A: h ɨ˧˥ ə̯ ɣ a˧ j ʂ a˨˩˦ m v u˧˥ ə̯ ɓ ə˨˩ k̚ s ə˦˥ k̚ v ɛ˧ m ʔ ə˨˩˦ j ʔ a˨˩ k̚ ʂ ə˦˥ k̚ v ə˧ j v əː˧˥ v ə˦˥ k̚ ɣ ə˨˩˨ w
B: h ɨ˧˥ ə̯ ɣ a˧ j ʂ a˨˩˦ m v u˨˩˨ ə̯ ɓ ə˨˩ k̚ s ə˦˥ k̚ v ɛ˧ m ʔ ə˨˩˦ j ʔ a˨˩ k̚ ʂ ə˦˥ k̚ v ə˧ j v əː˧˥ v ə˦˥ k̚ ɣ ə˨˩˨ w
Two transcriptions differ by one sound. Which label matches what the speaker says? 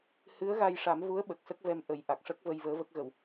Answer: A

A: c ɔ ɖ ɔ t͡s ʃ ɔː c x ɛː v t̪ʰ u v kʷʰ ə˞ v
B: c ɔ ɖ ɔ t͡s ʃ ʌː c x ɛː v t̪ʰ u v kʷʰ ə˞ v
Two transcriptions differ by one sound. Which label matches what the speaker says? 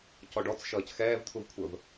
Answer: B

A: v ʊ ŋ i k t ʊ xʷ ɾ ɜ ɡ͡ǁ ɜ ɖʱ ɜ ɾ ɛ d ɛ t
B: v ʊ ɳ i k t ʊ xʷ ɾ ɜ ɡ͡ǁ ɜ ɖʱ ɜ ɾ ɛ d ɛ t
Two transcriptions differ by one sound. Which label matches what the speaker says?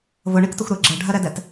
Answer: B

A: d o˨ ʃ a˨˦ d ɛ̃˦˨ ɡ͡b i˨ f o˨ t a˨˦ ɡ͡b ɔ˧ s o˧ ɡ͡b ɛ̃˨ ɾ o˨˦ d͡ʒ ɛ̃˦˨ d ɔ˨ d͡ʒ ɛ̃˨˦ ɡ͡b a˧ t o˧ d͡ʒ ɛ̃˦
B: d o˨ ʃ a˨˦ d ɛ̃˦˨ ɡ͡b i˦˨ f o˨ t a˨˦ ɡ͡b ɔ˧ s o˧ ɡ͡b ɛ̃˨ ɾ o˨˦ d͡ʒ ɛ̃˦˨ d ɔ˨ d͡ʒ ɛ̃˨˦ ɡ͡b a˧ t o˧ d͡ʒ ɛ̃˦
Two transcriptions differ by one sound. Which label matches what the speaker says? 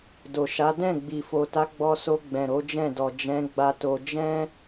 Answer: A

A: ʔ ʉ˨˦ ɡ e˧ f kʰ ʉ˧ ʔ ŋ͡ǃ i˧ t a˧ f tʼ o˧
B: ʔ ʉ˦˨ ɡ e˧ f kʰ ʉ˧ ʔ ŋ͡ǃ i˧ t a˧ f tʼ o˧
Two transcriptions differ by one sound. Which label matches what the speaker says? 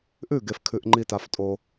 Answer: B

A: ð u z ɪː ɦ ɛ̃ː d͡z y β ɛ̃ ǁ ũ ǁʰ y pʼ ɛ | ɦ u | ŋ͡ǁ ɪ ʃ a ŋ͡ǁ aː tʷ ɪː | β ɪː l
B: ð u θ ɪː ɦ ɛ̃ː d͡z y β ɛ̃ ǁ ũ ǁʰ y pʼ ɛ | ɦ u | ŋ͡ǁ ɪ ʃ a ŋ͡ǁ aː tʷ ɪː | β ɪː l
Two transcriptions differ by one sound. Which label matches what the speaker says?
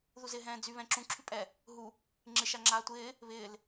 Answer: A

